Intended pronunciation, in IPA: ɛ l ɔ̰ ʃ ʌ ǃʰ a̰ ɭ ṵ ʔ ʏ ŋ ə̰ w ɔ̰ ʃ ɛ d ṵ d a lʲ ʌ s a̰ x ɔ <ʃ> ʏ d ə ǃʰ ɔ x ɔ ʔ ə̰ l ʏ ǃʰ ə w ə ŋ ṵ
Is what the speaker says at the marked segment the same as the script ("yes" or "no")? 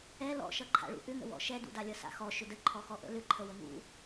yes